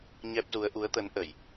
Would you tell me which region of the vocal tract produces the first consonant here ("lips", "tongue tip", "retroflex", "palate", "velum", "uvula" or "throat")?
palate